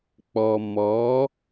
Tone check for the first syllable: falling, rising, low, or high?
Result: low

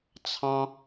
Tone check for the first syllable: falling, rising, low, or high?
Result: high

